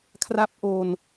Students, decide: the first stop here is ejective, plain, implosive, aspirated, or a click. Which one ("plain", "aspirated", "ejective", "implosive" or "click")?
aspirated